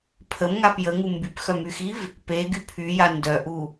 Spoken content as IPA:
pʰ ə m ŋ a p j ə ŋ u m b y p x œ m y x i v | p e ɡ y pʰ y j a n d œ ʔ u

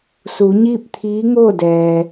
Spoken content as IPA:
s u˩˧ ɲ iː˥˨ p̚ t̪ʰ iː˧˥ ŋ oː˥˨ d ɛː˩

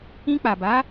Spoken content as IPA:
ĩ˧ k͡p a˨ b a˨˦

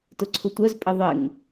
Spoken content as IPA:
t ʊ ǀʰ ʊ tʷ œ z pʼ ɪ ðˤ ɪ ŋ

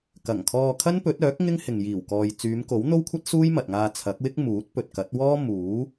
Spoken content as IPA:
k ɐ˨˩ ŋ kʰ ɔː˧ kʰ ɐ˥ n p ɵ˨˥ t̚ œː˨˥ k̚ ŋ ɪ˥ ŋ h ɪ˨ ŋ j iː˨˩ w k ɔː˨ j t͡s yː˨˧ m k o˨˥ w n̪ o˥ w kʷʰ ɐ˥ t̚ s uː˥ j m ɐ˨ t̚ ŋ aː˧ t͡sʰ ɐ˨˥ k̚ w ɪ˥ k̚ m uː˨˥ t̚ p ɵ˨ t̚ k ɐ˨˥ t̚ w ɔː˥ m uː˨˥

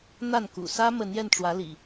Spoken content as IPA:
n̪ a˥˨ n k ṵ˨˩ s ä˦ m ə˨˦ n j ɛ˧ n ʈ͡ʂ w ä˨˦ l ḭ˨˩

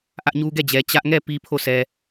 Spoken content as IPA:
ʔ ä˦ ʔ ɲ u˦ ɡ ɛ˦˨ d͡ʑ ɛ˨ t͡ɕ ä˦ ʔ ŋ ɛ˦˨ p i˦ pʰ o˦˨ sʰ ɛ˨

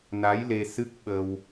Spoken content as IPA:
n a˧˥ j l e˧ s ɨ˦˥ k̚ ɓ ə˧ w

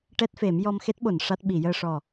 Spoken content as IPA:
ʈ ɛ˦˥ t̚ f e˨˩˦ m j ɔ˧ m x e˦˥ t̚ ɓ o˨˩˨ n ʂ a˦˥ t̚ ɓ i˨˩˨ j əː˧ ʂ ɔ˨˩

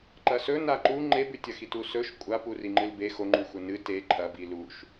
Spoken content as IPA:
ǃ ɐ s ɵ n a ǃ u ŋ͡ǃ e b ʉ tʲ ɐ x i t u s ɵ ʃ kʷʼ a p u r i ŋ͡ǃ ɨ l b e x o ŋ͡ǃ ʉ xʷ ɐ n ɨ t e ǃʰ ɐ b i l u ʃ

